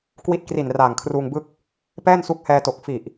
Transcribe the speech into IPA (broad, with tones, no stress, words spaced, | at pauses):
kwi˦˥t̚kri˨˩n raː˨˩ŋkʰruː˧ŋbɯ˥˩k̚ | pɛː˥˩nsu˦˥k̚hɛː˧to˨˩k̚ fi˨˩ʔ